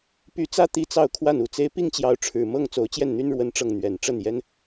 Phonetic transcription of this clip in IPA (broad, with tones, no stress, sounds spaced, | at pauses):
p y˧˥ t͡s ä˥ t̪ i˥˧ t͡s ɑ˥˧ ʊ̯ kʰ w a˥˩ n u˨˩ t͡s e˥ ɪ̯ p i˥˩ ŋ t͡ɕ j ɑ˧˥ ʊ̯ ʈ͡ʂʰ ɻ̩˨˩ m ɤ˥˩ ŋ t͡s o˧˥ ʊ̯ t͡ɕ j ɛ˥˩ n n̪ y˥ n ɻ w ə˥ n ʈ͡ʂ ɤ˥˩ ŋ n̪ ɥ ɛ˨˩ n ʈ͡ʂ ə˥˩ n j ɛ˥ n